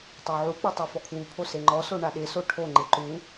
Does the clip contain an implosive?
yes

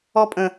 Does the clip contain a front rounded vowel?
no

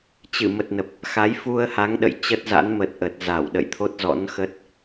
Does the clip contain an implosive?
yes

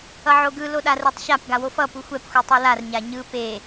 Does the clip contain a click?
no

